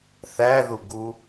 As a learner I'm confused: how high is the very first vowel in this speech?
low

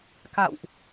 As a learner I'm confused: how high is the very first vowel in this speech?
low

